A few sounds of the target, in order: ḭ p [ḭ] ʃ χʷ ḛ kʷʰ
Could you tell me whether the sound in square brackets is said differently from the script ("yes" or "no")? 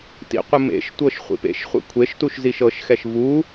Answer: yes